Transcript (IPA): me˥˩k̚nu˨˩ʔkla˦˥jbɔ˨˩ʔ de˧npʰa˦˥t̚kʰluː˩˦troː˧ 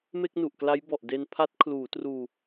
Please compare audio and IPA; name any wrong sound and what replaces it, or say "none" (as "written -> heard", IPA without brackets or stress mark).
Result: oː˧ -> uː˧